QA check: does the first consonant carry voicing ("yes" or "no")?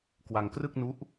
no